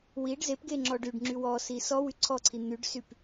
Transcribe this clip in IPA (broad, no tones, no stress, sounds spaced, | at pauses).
w i ɖ z e p ɡ e ŋ͡ǁ ɔ ɖ y ɖ ŋ͡ǁ y w ɔ s i s ɔ w y ǀʰ ɔ ǀʰ i n̪ y ɖ s y p